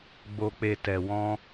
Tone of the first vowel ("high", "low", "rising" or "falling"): low